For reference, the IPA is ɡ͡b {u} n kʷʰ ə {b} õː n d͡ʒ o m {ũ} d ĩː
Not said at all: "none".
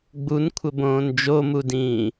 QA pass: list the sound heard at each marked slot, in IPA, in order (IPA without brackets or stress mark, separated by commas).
u, b, u